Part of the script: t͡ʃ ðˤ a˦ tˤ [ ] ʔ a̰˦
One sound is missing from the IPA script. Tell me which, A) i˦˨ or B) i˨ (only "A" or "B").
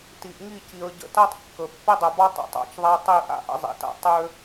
A